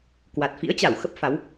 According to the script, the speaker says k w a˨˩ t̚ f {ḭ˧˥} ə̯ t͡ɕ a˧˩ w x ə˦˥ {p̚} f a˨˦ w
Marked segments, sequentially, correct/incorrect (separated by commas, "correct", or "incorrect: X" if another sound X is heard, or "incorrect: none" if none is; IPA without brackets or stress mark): correct, correct